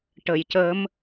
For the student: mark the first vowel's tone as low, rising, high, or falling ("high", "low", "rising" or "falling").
low